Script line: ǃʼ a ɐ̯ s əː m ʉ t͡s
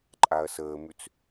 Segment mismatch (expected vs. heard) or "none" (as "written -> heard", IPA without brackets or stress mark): none